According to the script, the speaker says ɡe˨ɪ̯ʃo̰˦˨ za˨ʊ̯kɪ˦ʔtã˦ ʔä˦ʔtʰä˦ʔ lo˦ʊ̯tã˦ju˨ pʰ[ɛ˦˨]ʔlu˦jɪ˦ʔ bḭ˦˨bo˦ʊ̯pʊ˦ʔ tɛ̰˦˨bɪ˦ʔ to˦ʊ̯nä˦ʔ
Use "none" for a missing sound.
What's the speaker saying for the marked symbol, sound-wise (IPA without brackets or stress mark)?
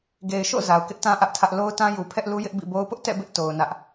ɛ˦